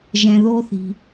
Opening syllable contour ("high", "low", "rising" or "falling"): low